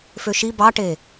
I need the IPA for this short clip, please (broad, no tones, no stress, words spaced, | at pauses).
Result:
føʃi bɑʈe